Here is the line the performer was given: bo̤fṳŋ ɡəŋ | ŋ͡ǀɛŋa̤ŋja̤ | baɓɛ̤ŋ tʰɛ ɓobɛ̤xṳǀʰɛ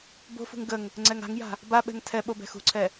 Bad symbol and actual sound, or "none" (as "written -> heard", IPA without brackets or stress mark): none